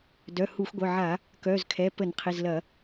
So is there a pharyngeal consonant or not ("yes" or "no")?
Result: yes